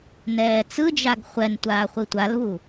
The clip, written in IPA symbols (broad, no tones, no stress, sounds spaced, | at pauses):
n ɛː t͡s ɯ d͡ʒ a ɡ χʷ ɛ n tʷ aː χʷ i tʷ a l β u